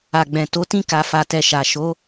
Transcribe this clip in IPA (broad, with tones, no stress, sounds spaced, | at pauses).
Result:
a˨ ɡ͡b ɛ̃˨ t o˨˦ t ĩ˦ k a˧ f a˧ t ɛ˧ ʃ a˨ ʃ o˨˦